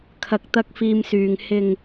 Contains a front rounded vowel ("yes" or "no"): yes